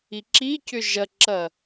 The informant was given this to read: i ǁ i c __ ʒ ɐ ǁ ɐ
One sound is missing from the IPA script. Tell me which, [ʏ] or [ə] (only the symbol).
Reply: ʏ